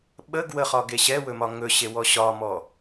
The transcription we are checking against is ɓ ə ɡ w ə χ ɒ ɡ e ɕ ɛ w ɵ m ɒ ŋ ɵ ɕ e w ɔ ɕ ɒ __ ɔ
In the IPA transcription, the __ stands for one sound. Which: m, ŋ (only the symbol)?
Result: m